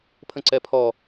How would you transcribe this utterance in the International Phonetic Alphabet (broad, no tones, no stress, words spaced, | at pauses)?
pʰə̃ǀɛpʰɔ